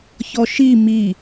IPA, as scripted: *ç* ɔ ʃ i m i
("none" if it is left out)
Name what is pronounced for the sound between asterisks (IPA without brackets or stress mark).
ç